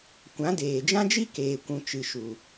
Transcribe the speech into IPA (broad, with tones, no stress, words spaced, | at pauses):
kʷã˨˦deː˨d͡ʒã˦d͡ʒi˦ keː˨kʷũ˨ t͡ʃɨ˨ʃu˨